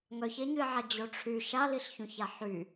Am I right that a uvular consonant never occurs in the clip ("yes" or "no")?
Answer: yes